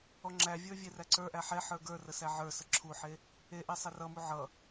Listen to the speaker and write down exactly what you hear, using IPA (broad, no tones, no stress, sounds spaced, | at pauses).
ɔ ŋ͡ǁ æ vʲ ə˞ vʲ e r æ ǀ ə˞ ʔ æ ħ ɛ ħ ə˞ ɡ ə˞ r ə s æ ʕ ə˞ s ə ǁʰ u ħ e | e ʔ ɛ sˤ ɛ r ʌ m u ʕ ʌ